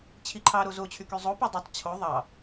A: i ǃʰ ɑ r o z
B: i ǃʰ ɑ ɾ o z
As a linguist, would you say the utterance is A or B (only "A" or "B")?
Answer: B